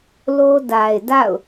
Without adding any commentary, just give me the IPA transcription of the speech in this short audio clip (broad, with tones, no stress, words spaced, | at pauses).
lo˦da˨ɪ̯ da̰˦˨ʊ̯